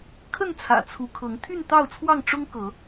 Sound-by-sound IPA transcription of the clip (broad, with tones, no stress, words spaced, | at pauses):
kʰə˥˨nt͡sʰä̰˨˩ t͡sʰu˨˦kʰɤ˨˦ŋ t̪ʰy˥˨nt̪ɑ˥˨ʊ̯t͡sʰwɑ˥˨ŋ ʈ͡ʂʊ˦ŋ kɤ˨˦